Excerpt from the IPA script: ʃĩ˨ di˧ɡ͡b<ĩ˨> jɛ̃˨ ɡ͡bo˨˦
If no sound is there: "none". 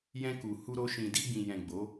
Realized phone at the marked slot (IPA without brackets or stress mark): ĩ˨